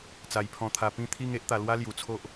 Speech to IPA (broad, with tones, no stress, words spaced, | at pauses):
t͡sa˧jpʰɔ̃˧t̪ʰa˧ pĩ˧t̪ʰi˧ŋ e˦ʔt̪a˧ lwa˦lju˨˩ t͡sʰo˦ʔ